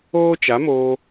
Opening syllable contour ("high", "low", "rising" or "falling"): high